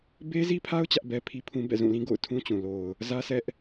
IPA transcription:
be˦zi˦pʰa˦ʊ̯ t͡ɕä˦ʔbɛ˦pʰi˦pʰũ˦ bɛ̰˦˨zũ˦˨lĩ˦ ɡo̰˦˨ʊ̯tʰũ˦t͡ɕũ˨ lo˨ʊ̯ | zä˦sʰɛ˦ʔ

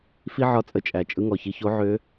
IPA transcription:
fi˥ʕɒ˧˥t͡sʼə˧t͡ʃʼæ˩ t͡ʃʼɯ˧ŋɔ˩çi˧ ço˧˥ʕø˧˥

